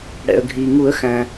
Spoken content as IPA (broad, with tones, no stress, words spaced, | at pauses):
ɽɛ̰˩ə̯ɡʱiː˩ŋu˨˩˦ə̯xæ̃˩